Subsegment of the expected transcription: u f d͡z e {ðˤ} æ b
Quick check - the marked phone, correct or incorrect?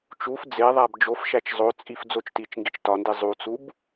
correct